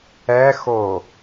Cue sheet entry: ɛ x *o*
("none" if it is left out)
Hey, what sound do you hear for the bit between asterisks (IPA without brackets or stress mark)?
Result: o